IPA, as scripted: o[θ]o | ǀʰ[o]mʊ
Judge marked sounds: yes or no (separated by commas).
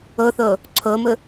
yes, yes